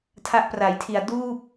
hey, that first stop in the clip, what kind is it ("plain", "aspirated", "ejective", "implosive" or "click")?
aspirated